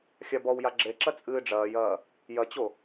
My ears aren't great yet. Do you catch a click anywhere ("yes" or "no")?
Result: yes